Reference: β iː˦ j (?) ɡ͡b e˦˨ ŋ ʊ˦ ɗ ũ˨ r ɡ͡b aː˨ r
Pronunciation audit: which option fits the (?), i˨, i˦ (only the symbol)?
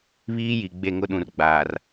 i˨